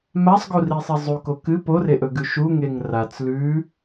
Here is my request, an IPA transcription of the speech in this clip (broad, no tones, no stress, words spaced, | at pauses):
masˤɡurisˤi zˤuko kɨ poreʔɵɡʉ ʃuŋeŋ rat͡s lʉ